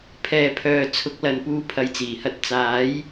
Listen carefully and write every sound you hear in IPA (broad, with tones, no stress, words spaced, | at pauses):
pʰɛː˨pʰœː˨t͡sʰʊ˨˥k̚ lɐ˨npuː˨˧ pʰɐ˨˥jt͡siː˨˩hɐ˧t̚ t͡saː˨˥j